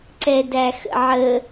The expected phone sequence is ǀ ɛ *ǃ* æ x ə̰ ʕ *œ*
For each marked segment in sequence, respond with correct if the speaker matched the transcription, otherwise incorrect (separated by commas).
incorrect, incorrect